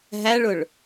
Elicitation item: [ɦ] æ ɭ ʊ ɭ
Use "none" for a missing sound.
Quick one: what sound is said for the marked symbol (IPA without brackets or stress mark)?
ɦ